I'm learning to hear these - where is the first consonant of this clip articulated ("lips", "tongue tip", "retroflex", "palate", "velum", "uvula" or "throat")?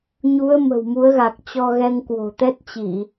palate